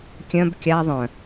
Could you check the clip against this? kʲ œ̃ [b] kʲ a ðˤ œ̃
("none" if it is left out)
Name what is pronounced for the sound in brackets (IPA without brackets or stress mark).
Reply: b